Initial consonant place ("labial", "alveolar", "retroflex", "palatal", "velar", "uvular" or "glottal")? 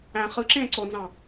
uvular